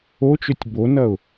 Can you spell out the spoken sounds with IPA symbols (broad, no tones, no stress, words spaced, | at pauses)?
ot͡ʃøtʲ bonɐʊ̯